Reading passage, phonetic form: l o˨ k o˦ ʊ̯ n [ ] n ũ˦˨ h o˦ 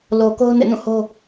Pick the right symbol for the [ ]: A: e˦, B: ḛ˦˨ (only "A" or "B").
B